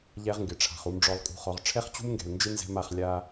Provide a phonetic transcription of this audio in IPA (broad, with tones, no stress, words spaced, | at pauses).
ʎɛ˦ʁŋɡɪ˨ʈ͡ʂʰa̤˨χ u˨mɖ͡ʐɔ˨lˠkʼṳ˨χɔ˨ʁ ʈ͡ʂʰɛ˦χt͡ɕṳ˦mŋɡɛ̤˨lnd͡ʒɪ˦ nzɛ̤˦ma˨˦χ lʲa˦